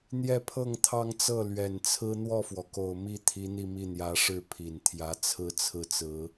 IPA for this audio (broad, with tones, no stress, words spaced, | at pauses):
n̪jɛ˥˧pʰɤ˥˧ŋt̪ʰɑ˥˧ŋt͡sɤ˥˩ lɥɛ˨˩nt͡sʰɹ̩˥ n̪wɔ˥˩fwɔ˩ko˨˩ʊ̯ mi˥ t̪ʰi˧˥n̪i˥˧mi˥˩ n̪jä˧˥ʂɻ̩˥˩ pʰi˨˩nt̪ʰjä˧˥ t͡sʰɹ̩˥˧t͡sʰɹ̩˥˩t͡sɹ̩˧˥